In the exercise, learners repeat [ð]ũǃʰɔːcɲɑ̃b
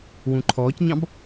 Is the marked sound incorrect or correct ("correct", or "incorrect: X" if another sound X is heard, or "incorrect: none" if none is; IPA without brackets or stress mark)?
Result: incorrect: w